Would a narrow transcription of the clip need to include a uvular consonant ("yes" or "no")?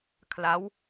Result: no